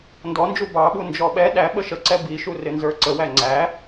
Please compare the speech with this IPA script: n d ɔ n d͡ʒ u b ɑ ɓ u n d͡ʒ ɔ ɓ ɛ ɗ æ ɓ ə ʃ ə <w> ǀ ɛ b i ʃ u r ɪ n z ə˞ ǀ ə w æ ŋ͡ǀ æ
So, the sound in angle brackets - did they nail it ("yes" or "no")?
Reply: no